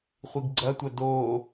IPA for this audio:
χʷ i ɡ ɡ͡ǀ ɐ tʷ ɐ d o

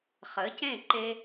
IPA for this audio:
χ ə˩˥ c ẽ˥˩ ǃ e˧

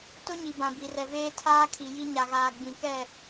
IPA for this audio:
t ʊ˦ ɲ i˨ b ã˨ b i˨ r ɛ˨ v eː˦ tʰ aː˦ kʰ i˨ j i˦ ɲ a˨ ɣ aː˨ ɡ͡b ĩ˨ k ɛ˦˨

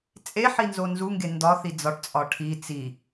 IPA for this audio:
t͡sʼ e ħ i n z o n z u ŋ ɡ e n d ɒ θ i d͡z ɒ ʈ t͡sʼ ɒ ʈʰ i t͡s i

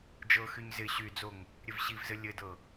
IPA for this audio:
d͡ʒ ɤ x y ɲ z ɪ ɕ y d͡z o ŋ | ɾʲ ɘ v ɕ i v z ɘ lʲ ɘ d ɤ

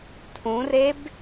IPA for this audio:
tʰ ũ r e b

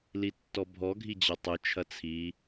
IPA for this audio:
l i tː ɔ bʱ ɔ ɡʱ i d͡ʑ ɐ tˤ ʊ t͡ʃʰ ɐ t͡sʰ i

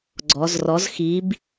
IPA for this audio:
ɡ͡ǀ ɔ˩˧ z r ɔ˨˥ z x i˨˥ b

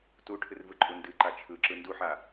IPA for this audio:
t u ʈʰ ɨ r v ɯ ǃʼ u n d ɨ ǃ a t͡ʃʰ ɯ ǁ ɯ n d u ħ a

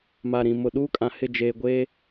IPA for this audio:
m a˨ ɾ ĩ˨ m ʊ˨ ɗ uː˦ kʼ ã˨ h ɪ˦˨ d͡ʒ eː˨ ɡʷ e˦

